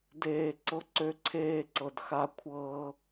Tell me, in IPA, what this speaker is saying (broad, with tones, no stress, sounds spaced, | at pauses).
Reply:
d eː˧ ǀ ɤ˧ ǀ ø˧ ǀʰ eː˧ ǀ ɤ˨ d x a˧ kʷʰ ɤː˧